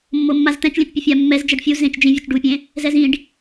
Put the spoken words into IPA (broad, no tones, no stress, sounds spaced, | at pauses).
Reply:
mː o mː a z t̪ ɛ̃ t͡ʃ lʲ ɛ̃ t͡ʃ pʲ ɯ fʲ a mː ɛ z d͡ʒ ɛ ɖ fʲ u z ẽ t͡ʃ d͡ʒ ĩ vʲ u t͡ʃ ɖ u pʲ ẽ | z ɛ z ĩ ɖ